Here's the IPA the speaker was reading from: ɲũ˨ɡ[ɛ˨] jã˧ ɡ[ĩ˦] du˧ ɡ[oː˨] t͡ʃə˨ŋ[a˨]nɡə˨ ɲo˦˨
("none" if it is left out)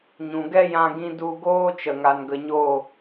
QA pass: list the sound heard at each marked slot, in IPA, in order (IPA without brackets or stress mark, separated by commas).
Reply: ɛ˦, ĩ˦, oː˦, a˨